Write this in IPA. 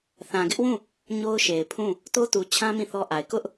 θã˨ɡɪ˦ʔwũ˦˨ | ɲo˦ʊ̯ʃe˨ɪ̯pʰũ˦˨ | to˦tu˨t͡ɕʰã˦ mĩ˦˨θɔ˦ʔa˨ɪ̯ kʊ˦ʔ

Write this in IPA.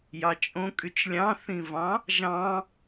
jɑt͡ʃʼõ kʼyt͡ʃlʲɑ̃θĩvɑ̃ | ʒɑ̃

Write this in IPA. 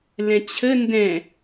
lɛ̃t͡ɕʰə ndɛ̃

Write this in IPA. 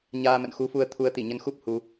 ɲaː˧ mə̰˧˨nxu˨˦fu˧ə̯ t̪ʰu˨˦ə̯t̪i˧˩ɲə˧nxu˦˥p̚ hu˧

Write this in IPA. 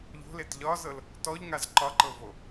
ʎo̤let ʎɒzɤl | tɔʎŋaz ǃɒǃɤvo

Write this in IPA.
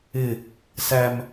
ɪ | sæm

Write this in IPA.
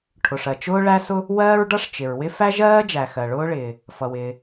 ʈʰʊ˩ʂɜ˩ t͡ʃʊː˥ɭæ˥sʊ˥ | wɜː˥ɹɖʌ˥ʂt͡ʃɪ˩ɹwɪ˥ fæ˥ʒɜː˥d͡ʒæ˩ xɜ˩ɭʊː˥ɭɪː˩ | fʌ˩wɪː˩

